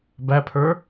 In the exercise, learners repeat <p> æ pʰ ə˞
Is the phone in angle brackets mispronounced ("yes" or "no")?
yes